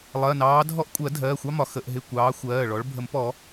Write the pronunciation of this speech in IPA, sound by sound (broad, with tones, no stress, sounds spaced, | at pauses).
lˠ ɜ˩˧˩ n ɑː˨˦ dʱ ɔ˦ ʔ kʷʼ ɜ˨˩˦ dʱ ɜː˩˧˩ xʷ ɑ˦ m ɒ˩ x ə˩˧˩ ʔ ɦ ɪ˩˧˩ kʷ ɑː˨˦ xʷ ɜː˩˧˩ ɭ ɔ˨˦ ɭ bʱ ə˨˩˦ m p ɔ˨˩˦